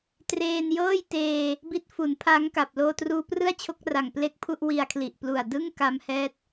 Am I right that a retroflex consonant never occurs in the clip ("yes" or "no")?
yes